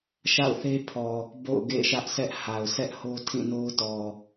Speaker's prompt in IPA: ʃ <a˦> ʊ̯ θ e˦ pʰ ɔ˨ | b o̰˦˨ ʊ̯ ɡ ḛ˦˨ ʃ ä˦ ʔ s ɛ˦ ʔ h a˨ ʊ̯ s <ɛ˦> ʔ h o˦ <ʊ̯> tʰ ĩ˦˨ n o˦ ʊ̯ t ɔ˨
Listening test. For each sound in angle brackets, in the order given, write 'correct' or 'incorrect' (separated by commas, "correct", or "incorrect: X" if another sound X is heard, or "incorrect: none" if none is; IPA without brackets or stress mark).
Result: incorrect: a̰˦˨, correct, incorrect: none